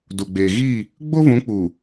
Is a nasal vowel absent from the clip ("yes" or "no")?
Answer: no